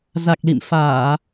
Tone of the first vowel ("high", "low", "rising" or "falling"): low